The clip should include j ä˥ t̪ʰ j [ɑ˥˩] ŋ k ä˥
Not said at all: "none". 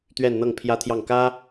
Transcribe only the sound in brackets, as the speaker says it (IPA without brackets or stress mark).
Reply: ɑ˥˩